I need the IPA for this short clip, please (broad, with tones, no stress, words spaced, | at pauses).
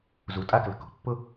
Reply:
zu˨tʼa˦klə̤˨ko̤˨ pːʊ˦